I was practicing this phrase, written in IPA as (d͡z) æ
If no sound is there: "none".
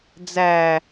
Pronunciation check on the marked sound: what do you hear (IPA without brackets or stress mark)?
d͡z